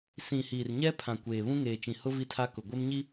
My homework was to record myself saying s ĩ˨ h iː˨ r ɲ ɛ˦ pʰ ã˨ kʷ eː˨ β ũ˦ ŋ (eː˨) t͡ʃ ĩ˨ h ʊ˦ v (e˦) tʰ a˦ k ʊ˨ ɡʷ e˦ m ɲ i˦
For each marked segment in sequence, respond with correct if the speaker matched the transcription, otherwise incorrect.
correct, incorrect: i˦

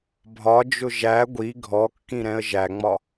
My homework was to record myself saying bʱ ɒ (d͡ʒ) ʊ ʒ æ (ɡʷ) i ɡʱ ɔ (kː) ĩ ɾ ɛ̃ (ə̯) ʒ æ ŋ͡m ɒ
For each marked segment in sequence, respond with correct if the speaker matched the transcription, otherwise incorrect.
correct, correct, correct, correct

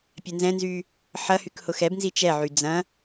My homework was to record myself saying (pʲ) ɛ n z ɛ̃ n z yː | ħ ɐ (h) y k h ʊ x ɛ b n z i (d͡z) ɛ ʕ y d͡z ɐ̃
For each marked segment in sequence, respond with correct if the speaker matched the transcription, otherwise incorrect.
correct, correct, incorrect: t͡ʃ

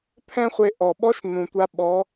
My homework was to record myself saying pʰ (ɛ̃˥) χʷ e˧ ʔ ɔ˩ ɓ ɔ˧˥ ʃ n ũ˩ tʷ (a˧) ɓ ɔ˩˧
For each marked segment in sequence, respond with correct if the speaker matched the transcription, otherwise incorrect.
correct, correct

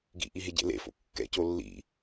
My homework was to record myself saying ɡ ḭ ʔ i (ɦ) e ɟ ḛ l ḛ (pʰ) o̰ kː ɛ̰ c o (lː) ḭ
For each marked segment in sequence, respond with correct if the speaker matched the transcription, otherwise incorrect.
correct, incorrect: f, correct

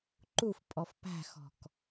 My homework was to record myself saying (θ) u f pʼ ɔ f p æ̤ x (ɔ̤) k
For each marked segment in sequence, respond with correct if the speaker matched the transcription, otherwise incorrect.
incorrect: ǃ, correct

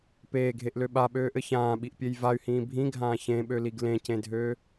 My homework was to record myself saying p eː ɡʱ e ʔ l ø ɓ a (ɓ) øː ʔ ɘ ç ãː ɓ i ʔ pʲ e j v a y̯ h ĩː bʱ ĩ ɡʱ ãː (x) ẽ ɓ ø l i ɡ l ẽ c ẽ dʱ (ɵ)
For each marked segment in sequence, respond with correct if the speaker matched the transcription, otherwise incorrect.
correct, incorrect: ç, incorrect: ø

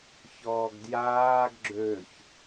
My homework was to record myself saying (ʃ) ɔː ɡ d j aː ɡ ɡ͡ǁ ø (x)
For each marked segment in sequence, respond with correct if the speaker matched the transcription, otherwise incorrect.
incorrect: ç, incorrect: ç

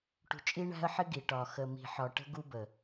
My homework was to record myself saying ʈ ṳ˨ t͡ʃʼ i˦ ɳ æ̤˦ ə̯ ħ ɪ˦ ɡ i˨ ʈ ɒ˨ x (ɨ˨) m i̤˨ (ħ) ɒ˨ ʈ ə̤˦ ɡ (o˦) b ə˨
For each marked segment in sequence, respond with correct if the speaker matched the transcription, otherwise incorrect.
incorrect: ə˨, correct, incorrect: u˦

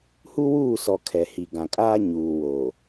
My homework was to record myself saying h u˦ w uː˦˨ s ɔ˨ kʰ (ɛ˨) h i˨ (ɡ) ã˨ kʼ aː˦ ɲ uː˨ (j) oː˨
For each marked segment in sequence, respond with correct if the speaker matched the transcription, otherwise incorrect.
correct, correct, incorrect: w

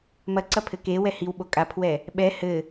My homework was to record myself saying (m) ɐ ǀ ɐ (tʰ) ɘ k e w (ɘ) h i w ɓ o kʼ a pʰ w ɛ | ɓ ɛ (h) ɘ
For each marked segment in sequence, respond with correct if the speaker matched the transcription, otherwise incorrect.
correct, incorrect: pʰ, incorrect: ɛ, correct

